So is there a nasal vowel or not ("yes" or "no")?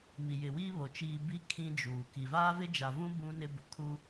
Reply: yes